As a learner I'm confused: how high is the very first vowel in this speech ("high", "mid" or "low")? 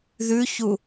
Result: high